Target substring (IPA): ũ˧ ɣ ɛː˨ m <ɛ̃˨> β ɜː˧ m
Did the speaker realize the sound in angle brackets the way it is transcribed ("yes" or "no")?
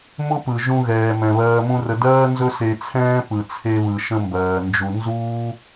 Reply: yes